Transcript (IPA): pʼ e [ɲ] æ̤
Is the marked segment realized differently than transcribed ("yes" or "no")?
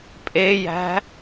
yes